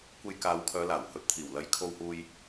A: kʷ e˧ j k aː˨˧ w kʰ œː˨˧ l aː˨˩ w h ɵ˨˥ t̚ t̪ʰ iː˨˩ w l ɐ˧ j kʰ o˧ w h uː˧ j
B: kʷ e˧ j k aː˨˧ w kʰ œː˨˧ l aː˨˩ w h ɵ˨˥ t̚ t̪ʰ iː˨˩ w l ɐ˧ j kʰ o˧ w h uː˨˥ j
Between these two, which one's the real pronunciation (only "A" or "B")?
A